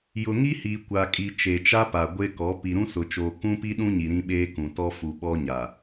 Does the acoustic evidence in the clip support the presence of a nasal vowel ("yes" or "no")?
yes